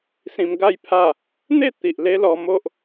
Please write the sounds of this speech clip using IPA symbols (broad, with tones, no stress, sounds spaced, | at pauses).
s ĩ˧ m ɡ a˥˧ j pʰ a˥˧ | n̪ e˥˧ t̪ i˨ ʔ l e˦ l ɔ˧ m o˦ ʔ